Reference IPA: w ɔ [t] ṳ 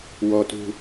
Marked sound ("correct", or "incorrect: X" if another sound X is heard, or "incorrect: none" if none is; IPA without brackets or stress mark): correct